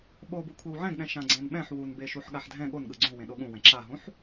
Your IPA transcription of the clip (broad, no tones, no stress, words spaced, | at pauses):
ɓobu kʷʰewʕɛ̃ɡɗɛ̃ ʃãɡ͡ǀɛ̃nɓɛ̃ħ wunbeʃuħ ɠaħdʱɛ̃ ɠonɠɯ ɡ͡ǀũwẽ ɗoɠũwɛ̃ ǁaɦũħ